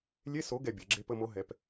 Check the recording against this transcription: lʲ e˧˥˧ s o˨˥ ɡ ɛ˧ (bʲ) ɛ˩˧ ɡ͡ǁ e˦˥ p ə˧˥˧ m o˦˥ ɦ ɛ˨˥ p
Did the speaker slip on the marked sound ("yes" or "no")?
no